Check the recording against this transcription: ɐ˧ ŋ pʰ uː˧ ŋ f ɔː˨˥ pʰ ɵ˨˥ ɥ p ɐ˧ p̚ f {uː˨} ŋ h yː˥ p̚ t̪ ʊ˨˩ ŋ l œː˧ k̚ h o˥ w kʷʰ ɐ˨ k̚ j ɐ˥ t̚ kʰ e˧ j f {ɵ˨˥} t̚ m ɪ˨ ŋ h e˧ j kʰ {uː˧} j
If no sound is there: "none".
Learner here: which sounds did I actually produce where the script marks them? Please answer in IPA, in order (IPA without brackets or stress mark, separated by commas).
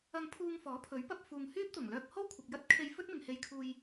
uː˨, ɵ˥, uː˧